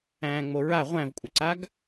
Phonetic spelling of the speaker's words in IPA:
æ̃ː ŋ͡m o ɹ a ʁʷ æ̃ v kʷʼ ə ǀ a ɡ

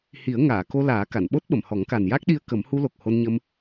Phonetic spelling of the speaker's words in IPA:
h i˨˩˦ ə̯ ŋ aː˨˩˨ k o˧ l aː˨˩˦ k a˨˩˨ n ɓ o˦˥ t̚ ɓ ə˨˩˨ m h ɔ˨˩˦ ŋ k a˨˩ n j a˦˥ k̚ ɗ i˧ ə̯ k ə˨˩˦ m h u˧ l o˨˩ k̚ h o˧ n ɲ ə˧ m

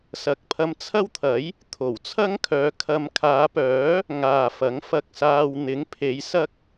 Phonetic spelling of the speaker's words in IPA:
s ɐ˨ k̚ pʰ ɐ˧ m t͡sʰ ɐ˥ w t̪ʰ ɐ˨˥ j | t̪ʰ o˨˩ w t͡sʰ ɐ˥ ŋ kʰ œː˨˧ kʰ ɐ˧ m kʰ aː˨˧ p œː˨˥ | ŋ aː˨ f ɐ˨˥ ŋ f ɐ˧ k̚ s aː˧ w n̪ ɪ˨˥ ŋ pʰ e˨˧ j s ɐ˥ k̚

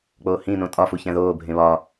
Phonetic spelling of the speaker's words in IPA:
k͡p oː h ĩ n õ tʼ ɒ f u ç æ̃ ð oː bʱ ẽ β ɒː

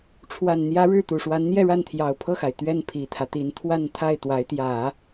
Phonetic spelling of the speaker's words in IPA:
ʈ͡ʂʰ w a˨˩ n n̪ j ä˧˥ ɻ ɻ̩˥˩ t̪ u˨˩ ʂ w a˧˥ n n̪ j ɛ˥˧ ɻ a˥˩ n t̪ʰ j ɑ˨˩ ʊ̯ pʰ ɤ˥˩ x a˩ ɪ̯ t̪ ɥ ɛ˥˩ n pʰ i˨˩ t̪ʰ ä˦ t̪ i˧˥ n t̪ʰ w a˥˧ n t̪ʰ a˥˩ ɪ̯ t̪ w a˧˥ ɪ̯ t̪ j ä˨˩˦

